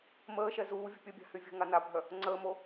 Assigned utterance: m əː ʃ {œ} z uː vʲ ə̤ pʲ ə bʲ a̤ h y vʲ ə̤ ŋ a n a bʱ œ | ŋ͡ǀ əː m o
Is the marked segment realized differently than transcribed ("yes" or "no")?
yes